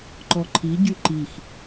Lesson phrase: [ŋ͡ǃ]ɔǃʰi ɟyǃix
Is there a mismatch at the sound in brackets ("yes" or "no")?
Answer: yes